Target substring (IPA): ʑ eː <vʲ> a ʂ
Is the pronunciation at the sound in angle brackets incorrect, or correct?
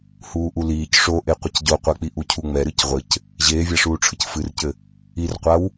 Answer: correct